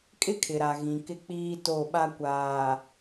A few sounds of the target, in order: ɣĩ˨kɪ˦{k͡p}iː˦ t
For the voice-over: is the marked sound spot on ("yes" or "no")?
yes